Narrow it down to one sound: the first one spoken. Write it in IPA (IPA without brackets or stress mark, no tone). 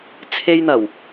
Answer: t͡sʰ